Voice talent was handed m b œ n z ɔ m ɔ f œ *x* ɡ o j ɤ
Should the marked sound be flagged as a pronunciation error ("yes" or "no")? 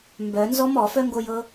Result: yes